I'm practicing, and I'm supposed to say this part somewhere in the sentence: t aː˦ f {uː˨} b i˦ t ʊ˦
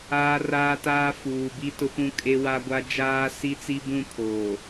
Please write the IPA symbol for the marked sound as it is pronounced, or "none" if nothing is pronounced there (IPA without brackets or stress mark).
uː˨